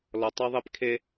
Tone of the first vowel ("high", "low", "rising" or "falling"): low